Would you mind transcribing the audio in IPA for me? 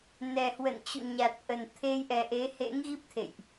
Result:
n ɛ˨˩ h w ə̰˧˨ n t͡ɕ ṵ˧˨ ɲ a˨˩ t̚ ʔ ə˨˩ n t̪ʰ e˧ j ʔ ɛ˨˩ ʔ e˨˦ h ḛ˧˥ ŋ ɣ i˦˥ p̚ t̪ʰ ḛ˧˨ j ʔ

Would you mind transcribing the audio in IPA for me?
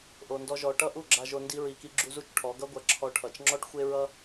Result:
ʔ o˧ n d ɔ˦ ʒ ɔ˧ ʈ ʌ˦ ʔ u˦˨ ɡ͡ǁ a˧ ʒ o˧ n d i˦ ɹ i˧ k i˦ ɡ͡ǁ u˦ z u˦ t͡ʃ ʈʰ ɔ˨˦ ɡ ʌ˦ ɡʷ ɐ˧ ǁʰ ɔ˧ ʈʰ ʌ˨ t͡ʃ ŋ͡ǁ ɔ˦ ʈ xʷ e˦ ɹ ʌ˦

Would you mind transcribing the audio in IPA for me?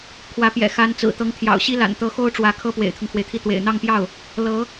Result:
kʰ w ä˧˥ p j ɛ̰˨˩ x a˧˥ n t͡s ɹ̩˨˩ t̪ ɤ˧˥ ŋ t̪ʰ j ɑ̰˨˩ ʊ̯ ɕ i˥ l a̰˨˩ n t̪ ɤ˧˥ x o˥ ʊ̯ ʈ͡ʂ w ä˧˥ kʰ ɤ˥ p w ḛ˨˩ ɪ̯ t̪ʰ ʊ˦ ŋ kʰ w e˩ ɪ̯ t̪ʰ i˥˩ t̪ w ḛ˨˩ ɪ̯ n̪ ɑ˥˧ ŋ p j ɑ˥˩ ʊ̯ | l ɤ˧˥

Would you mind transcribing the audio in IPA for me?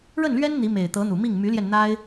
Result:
ɻ ə˥˩ n l ɥ ɛ˥ n n̪ i˧˥ m e˨˩ ɪ̯ t̪ ɤ˧˥ n̪ u˨˩ m i˥˩ ŋ m y˧˥ l j ɛ˧ n n̪ a˥ ɪ̯

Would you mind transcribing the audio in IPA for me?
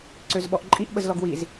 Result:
ǀ ø z ɓ ɔ ʔ ǃʼ i ʔ ɓ ə z l ɔ ɡ w i z

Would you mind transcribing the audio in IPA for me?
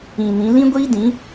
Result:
ĩ˨ n ĩ˨˦ l ĩ˦ ɡʷ iː˦ d ĩ˨˦

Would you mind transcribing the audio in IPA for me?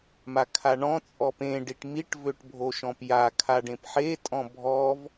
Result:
m a kʰ a ɳ ɔ̃ t͡sʼ ɔ p ẽ ɖ i ʈ m i ʈ v ø ʈ bʱ o ʃ ɔ̃ p j a kʰ a ɖ ẽ p ħ e tʼ ɔ̃ bʱ ɔ v

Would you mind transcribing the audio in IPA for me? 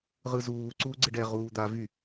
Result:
ʁ ɯ z uː ǀ uː ɡ͡ǀ ɪ ɖ ɛ ʁ uː d̪ a v y

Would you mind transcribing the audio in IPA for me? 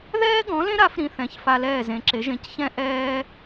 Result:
ð ɛː˥ ɡ ɔ̃˩˥ l ẽ˥ ɾ a˩˥ f ɾ ĩ˧ θ ɛ̃˩˥ ç f a˧ l ɛː˥˩ z ẽ˩˥ ǁ e˩˥ ʒ ẽ˩˥ c ç ɛ̃˥ ʔ ɛː˥

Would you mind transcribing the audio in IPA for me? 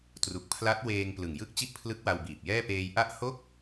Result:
t r u˨˩ k̚ pʰ l a˦˥ t̚ w eː˧ ŋ p l ɯ˨˩ ŋ j ɯ˥˩ k̚ t͡ɕ i˥˩ ʔ pʰ l ɯ˦˥ k̚ w a˧ w b iː˨˩ p̚ j ɛː˥˩ p eː˧ j ʔ a˥˩ ʔ h o˥˩ k̚

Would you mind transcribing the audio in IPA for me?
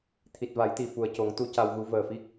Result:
t̪ʰ i˨˩ t̚ v a˨˩˦ j t̪ i˨˩ f u˨˩ ə̯ c o˨˩˦ ŋ t̪ u˧˥ c a˧ w ɣ u˧˥ v əː˨˩ f i˦˥ k̚

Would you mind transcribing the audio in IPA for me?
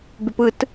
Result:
b y p ɯ t

